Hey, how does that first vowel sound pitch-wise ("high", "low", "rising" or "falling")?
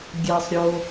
low